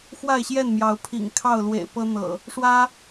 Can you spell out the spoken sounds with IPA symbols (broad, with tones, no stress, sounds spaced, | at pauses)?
x w a˥˨ ɪ̯ ɕ j ɛ˥˨ n m j ɑ˨˦ ʊ̯ pʰ ḭ˨˩ ŋ kʰ ɑ˥˨ ʊ̯ l w ḛ˨˩ ɪ̯ p ɤ˦ n̪ ɤ̰˨˩ | ʂ w ä˦